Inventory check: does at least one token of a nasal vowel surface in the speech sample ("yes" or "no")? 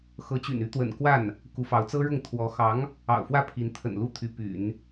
no